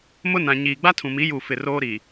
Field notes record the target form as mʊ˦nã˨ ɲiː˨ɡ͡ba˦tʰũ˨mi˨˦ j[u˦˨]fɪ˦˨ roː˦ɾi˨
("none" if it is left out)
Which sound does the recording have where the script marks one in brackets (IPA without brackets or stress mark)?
u˦˨